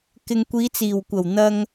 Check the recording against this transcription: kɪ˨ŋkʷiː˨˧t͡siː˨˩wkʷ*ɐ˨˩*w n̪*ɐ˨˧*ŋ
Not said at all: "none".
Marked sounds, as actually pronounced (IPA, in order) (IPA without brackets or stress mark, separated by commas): ɐ˨˩, ɐ˧